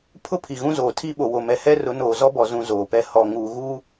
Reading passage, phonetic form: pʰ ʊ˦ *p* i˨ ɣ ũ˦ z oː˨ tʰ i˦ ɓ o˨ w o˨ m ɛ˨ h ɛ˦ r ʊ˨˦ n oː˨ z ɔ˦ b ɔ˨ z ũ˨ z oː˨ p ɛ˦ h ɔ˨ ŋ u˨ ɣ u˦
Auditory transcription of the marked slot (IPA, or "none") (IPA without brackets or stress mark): pʰ